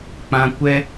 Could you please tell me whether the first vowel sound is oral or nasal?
nasal